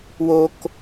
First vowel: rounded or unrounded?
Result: rounded